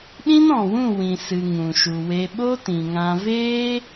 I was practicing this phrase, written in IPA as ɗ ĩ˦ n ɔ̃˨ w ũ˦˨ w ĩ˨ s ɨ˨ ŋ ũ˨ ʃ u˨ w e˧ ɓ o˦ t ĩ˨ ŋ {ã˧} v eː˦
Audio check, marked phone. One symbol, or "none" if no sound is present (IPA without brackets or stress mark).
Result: ã˧